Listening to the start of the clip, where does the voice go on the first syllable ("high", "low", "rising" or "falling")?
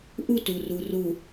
falling